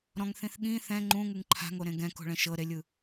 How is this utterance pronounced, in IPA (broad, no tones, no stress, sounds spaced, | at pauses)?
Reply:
ɾ ɔ̃ ŋ θ ĩ θ ɠ ĩ θ ɛ̃ ŋ͡ǃ ũ ŋ ɯ ŋ ǃʰ a̤ ŋ o ɾ ẽ ɡ ɛ̃ k o̤ ɭ ɛ̃ ʃ ɤ ɾ e lʲ ɯ